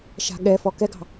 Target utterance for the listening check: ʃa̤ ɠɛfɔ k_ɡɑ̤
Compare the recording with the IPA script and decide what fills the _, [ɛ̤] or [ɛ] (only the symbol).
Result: ɛ